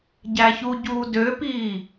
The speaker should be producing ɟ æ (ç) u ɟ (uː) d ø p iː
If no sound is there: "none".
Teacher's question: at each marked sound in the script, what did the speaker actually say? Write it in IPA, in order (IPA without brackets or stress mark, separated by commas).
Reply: ç, uː